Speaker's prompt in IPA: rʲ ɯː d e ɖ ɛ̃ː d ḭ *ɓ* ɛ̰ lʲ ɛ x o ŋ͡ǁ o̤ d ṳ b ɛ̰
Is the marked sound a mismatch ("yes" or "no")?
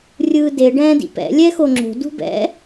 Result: yes